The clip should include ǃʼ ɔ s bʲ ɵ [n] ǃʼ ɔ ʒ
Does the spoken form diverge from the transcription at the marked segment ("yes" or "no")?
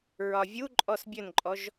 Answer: no